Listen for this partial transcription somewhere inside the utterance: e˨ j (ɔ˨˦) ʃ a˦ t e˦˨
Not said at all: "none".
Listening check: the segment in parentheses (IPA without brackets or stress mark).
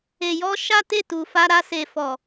ɔ˧